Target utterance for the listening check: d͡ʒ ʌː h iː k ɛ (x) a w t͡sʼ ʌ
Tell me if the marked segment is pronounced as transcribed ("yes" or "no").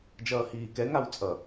no